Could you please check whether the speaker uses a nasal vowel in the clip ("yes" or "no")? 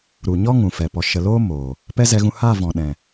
yes